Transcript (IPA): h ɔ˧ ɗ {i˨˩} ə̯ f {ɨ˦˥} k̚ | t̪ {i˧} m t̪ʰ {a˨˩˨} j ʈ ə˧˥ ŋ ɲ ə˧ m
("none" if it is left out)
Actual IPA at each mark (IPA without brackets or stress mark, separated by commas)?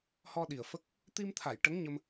i˨˩, ə˦˥, i˧, a˨˩˨